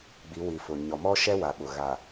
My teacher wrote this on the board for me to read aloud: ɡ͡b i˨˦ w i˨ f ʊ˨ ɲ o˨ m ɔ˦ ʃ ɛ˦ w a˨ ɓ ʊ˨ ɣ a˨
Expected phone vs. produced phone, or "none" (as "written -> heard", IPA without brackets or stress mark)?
o˨ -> ɔ˨